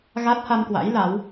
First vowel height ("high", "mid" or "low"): low